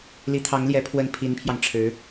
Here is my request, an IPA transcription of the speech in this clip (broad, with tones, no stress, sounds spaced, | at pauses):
l i˧˥ t̪ʰ ɑ˧˥ ŋ l j ɛ˧˥ pʰ w ə˥˩ n pʰ i˧˥ n pʰ j ɑ˧ ŋ ʈ͡ʂʰ ɻ̩˧˥